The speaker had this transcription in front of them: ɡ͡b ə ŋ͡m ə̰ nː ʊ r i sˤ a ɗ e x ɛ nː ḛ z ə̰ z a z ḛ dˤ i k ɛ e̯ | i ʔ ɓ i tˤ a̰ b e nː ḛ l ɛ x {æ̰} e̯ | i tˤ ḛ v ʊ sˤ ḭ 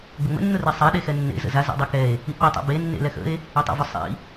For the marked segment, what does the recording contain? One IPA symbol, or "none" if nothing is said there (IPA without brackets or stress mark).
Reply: ə̰